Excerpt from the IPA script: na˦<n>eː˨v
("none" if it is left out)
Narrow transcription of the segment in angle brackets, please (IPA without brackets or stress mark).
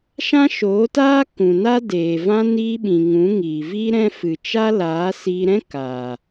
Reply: d